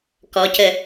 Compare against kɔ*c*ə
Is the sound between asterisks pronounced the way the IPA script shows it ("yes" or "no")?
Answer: yes